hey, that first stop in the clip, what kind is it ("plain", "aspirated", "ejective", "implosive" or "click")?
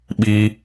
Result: implosive